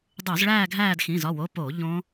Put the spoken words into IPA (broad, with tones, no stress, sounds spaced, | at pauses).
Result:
dˤ u˧˩˧ z ɭ æː˦˨ ɡʱ æː˦˨ d x ĩ˩˧˩ z ɒ˩˧˩ w o˩˧˩ p oː˧˩˧ ʎ õ˦˥